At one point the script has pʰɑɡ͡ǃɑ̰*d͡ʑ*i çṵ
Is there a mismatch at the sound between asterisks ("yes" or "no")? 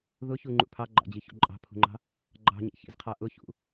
no